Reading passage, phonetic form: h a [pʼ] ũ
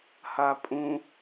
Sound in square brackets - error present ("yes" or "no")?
no